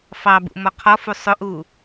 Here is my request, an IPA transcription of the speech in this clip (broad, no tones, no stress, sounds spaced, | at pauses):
f ɑ b ṵ m ɔ qʰ ɔ f u sˤ ʊ ʔ u